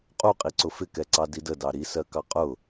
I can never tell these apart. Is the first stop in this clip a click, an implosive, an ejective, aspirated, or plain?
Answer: ejective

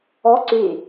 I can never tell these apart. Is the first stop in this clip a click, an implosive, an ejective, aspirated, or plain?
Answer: click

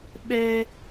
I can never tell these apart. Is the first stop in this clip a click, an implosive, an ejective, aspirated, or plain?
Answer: implosive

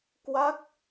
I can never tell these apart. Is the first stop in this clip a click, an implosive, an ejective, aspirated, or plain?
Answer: plain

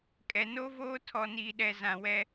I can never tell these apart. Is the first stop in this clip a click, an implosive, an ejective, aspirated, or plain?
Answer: ejective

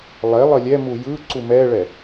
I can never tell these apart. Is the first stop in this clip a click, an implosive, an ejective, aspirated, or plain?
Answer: click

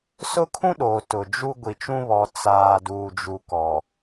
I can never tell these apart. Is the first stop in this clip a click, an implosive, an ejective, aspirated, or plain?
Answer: aspirated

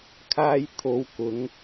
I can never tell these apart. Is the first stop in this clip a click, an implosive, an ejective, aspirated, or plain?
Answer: aspirated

